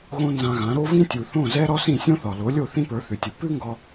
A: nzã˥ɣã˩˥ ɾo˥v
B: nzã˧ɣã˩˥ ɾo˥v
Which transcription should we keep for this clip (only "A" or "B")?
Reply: B